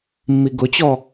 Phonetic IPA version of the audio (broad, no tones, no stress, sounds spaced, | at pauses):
mː i ɡ ʊ t͡ɕ ɔ